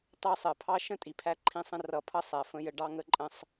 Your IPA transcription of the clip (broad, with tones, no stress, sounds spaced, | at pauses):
t ɑ˦˨ sˤ ɜ˨ pʰ ɑ˦ ʃ ə̃˦ tʼ i˨ pʰ æ˦ ǃʰ ĩ˦ sˤ ə̃˦ r ʌ˨˦ pʰ ʌ˦ sˤ æ˨ f ə̃˦ j ə˦ ɖ ɑ˦ ŋ ə˦ ǃʼ ə̃˦ sˤ